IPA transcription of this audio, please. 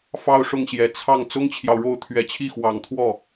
f ɑ˥˧ ʊ̯ ʂ ʊ˥˩ ŋ ɕ j ɛ˨˩ t͡sʰ ɑ˥˩ ŋ t͡s ʊ˥ ŋ t͡ɕʰ j ɑ˨ ʊ̯ ɻ o˥˩ ʊ̯ t̪ʰ ɥ ɛ˨˩ t͡ɕʰ i˥˩ x w ɑ˨˩ ŋ t̪ʰ w ɔ˥˩

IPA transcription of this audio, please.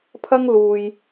pʰ ɐ˥ ŋ l uː˧ j

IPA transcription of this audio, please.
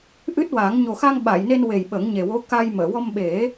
ʔ ɨ˦˥ t̚ w a˨˩˦ ŋ ɲ o˨˩ x a˧ ŋ ɓ a˨˩˨ j n e˧ n w e˨˩ j ɓ ə˨˩˦ ŋ ɲ e˨˩ w o˧˥ k a˧ j m əː˨˩˨ w ɔ˧ m ɓ e˨˩˦

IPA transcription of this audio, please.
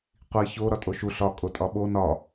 qʷ i ç o ɾ ɒ tʼ o ʃ u ɬ ɒ kʼ o tʼ ɒ ɓ o n ɒ

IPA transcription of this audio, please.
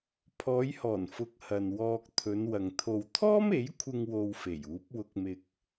pʰ ɔː˨˧ j h ɔː˨˩ n f ʊ˧ k̚ h ɐ˨ n w ɔː˧ k̚ t̪ʰ ɵ˨˧ n w ɐ˨ ŋ t̪ʰ o˨ w t̪ʰ ɔː˥ m e˨˥ j kʷʰ ɪ˧ ŋ w o˧ w f e˨˩ j uː˨˥ p̚ w ʊ˧ k̚ m ɪ˧ k̚

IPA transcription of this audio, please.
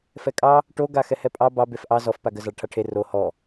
f ɛ kʼ ɑ | ʈ o ɡ a x ɛ h ɛ pʼ ɑ b ɑ b e f ʔ ɑ z ɔ f p a ɡ ə z ɑ ɭ ʈʰ a ʈʰ e r o h ɔ

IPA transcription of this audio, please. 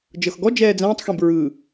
d͡ʒ ɤ x ɡ ɔ d͡ʒ ɛː d͡z ɛ̃ː tˤ x ẽ b ɹ ɯː

